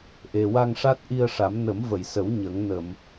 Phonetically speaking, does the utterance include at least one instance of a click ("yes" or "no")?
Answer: no